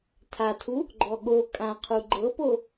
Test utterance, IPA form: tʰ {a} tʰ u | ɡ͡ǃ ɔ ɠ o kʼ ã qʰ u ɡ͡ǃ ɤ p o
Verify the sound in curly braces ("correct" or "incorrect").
correct